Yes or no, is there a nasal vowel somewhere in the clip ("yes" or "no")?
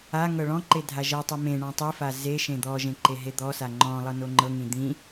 yes